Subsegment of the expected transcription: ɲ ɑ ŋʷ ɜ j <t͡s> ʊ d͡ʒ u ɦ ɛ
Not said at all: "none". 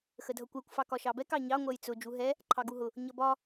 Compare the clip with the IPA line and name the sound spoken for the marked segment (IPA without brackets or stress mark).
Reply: t͡s